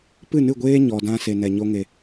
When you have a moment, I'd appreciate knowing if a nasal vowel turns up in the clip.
yes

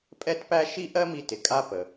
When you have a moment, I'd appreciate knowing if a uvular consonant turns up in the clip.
no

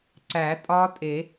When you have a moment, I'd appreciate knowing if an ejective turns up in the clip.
yes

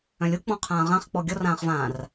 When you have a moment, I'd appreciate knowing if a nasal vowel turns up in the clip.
yes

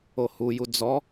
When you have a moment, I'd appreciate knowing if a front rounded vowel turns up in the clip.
no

